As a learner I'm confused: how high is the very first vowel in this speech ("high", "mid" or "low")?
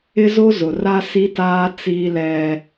high